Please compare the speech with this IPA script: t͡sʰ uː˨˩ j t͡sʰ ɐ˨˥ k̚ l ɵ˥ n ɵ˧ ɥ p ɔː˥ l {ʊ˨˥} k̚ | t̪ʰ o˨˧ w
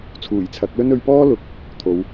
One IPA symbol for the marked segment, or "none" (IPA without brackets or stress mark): ʊ˨˥